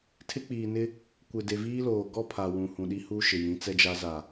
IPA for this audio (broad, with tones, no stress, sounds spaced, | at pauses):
tʰ ɪ˦ k͡p iː˨ n ɪ˦ | kʷ ɪ˨ d e˨ v iː˦ l oː˨ ɡ ɔ˦ pʰ a˨ w ũ˨ h ũ˨ ɗ i˦ h u˦ ʃ ɪ˨ j ĩ˨˦ t͡s ɛ˦ d͡ʒ a˦ z a˨